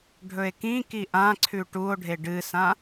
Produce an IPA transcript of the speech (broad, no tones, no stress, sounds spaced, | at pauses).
ɖʱ ɵ e̯ k ĩ k i ʔ ã ǀʰ ʉ ʈ u o̯ ɖʱ e ɖ ɨ s ã